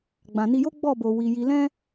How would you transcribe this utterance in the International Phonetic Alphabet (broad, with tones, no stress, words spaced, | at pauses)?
ɡ͡bã˨ni˧jo˦ ɡ͡bɔ˦˨bo˨ wi˨ ji˨lɛ̃˧